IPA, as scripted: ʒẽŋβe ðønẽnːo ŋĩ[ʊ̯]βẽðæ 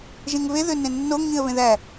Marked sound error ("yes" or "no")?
yes